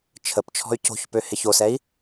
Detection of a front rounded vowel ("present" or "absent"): present